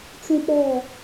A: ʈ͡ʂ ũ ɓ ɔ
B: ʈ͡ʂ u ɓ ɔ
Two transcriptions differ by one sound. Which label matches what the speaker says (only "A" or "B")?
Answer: A